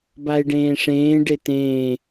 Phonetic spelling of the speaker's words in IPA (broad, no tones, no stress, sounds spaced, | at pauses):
b a e̯ ɖ ẽː ʂ ẽː ɖ e t ẽː